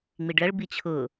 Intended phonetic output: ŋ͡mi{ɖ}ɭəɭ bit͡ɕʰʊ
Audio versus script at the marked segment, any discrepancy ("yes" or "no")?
no